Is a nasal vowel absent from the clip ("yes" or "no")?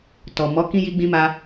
no